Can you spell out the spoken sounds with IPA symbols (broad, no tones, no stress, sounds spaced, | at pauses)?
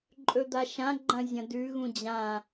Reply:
ǃʼ ɵ d̪ a ʃ ã ɡ͡ǃ ɐ̃ zʲ ɐ̃ d ʉ ɣ ũ d͡ʑ ã